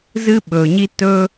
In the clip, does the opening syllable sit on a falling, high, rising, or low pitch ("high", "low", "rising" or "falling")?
high